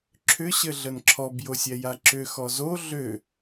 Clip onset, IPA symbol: ǁʰ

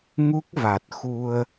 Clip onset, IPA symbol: ŋ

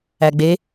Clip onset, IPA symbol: æ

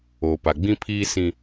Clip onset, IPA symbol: o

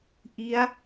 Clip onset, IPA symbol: ʔ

